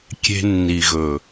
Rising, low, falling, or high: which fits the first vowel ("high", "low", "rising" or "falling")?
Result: low